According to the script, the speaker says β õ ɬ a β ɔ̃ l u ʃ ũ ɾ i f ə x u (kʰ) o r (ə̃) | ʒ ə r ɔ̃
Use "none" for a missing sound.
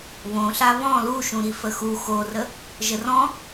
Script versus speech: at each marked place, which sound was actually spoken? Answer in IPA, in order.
x, ə

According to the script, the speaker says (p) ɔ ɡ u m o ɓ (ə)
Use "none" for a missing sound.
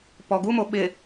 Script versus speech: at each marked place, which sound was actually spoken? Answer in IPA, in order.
p, ɪ

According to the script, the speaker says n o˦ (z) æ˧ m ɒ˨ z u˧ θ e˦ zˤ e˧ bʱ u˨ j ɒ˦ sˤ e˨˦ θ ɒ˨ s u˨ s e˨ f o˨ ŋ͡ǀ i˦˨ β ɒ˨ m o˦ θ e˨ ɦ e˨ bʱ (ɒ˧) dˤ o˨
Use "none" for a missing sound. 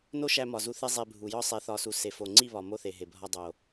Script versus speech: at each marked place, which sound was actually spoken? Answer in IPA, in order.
ʃ, ɒ˧

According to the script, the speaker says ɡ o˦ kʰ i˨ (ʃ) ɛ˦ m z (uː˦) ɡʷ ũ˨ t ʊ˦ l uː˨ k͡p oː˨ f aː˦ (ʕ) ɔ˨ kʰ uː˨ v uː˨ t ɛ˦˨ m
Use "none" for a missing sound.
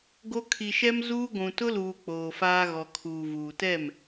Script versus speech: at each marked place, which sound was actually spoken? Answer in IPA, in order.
ʃ, uː˦, ɣ

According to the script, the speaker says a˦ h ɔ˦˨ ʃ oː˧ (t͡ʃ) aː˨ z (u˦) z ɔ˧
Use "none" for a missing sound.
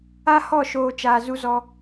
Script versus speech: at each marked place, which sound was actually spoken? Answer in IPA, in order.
t͡ʃ, u˦

